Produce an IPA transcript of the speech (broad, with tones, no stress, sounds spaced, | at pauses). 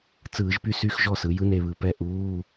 t͡s ɯː˧˩˧ ʒ p y˥˨ s y˧˥˧ x ʒ ɔ˥˨ s ɯ˩˥ j ɯ˧˥˧ n e˥˨ β ɯ˧˩ p ɛ˥˨ ʔ uː˧˥˧